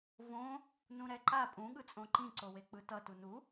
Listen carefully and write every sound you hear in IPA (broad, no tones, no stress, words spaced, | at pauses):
võ | nũɾɛǃa pʼũ ɠɯt͡sʼõǃĩ ǀowek͡pɯtʌ tunu